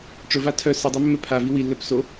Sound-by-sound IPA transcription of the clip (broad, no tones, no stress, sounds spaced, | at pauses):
ʈ͡ʂ ɵ v a tʰ œ s ɛ dˤ ɵ mː ɛ pʰ a v i w i lː œ p s o